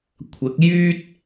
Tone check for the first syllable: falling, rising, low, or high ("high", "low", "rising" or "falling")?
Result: rising